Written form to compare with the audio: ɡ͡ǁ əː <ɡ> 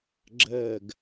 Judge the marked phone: correct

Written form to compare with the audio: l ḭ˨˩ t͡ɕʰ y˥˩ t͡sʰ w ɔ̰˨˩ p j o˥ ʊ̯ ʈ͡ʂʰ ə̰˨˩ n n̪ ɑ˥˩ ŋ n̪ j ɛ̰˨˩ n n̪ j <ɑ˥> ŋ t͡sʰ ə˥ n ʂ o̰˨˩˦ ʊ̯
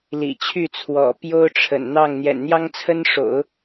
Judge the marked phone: correct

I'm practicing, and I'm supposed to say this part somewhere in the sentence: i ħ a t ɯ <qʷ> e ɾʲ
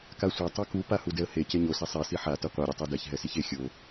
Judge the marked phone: correct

